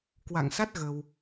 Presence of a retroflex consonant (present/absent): absent